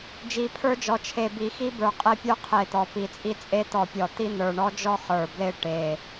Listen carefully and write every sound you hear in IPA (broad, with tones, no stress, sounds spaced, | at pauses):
d͡ʒ i˨˩ pʰ ə˞˧ d͡ʒ ɔ˨˩ t͡ʃʰ e˨˩ b i˨˩ x i˧ b ə˞˨˩ qʼ e˧ pʲ ə˞˧ qʰ e˨˩ t̪ ɔ˨˩ p i˨˩ t͡sʼ i˧ t͡sʼ e˧ t̪ ɔ˨˩ pʲ ɔ˨˩ t̪ i˧ n̪ ə˞˨˩ ɳ ɔ˧ d͡ʒ ɔ˧ χ ə˞˨˩ b l e˧ ʈ e˨˩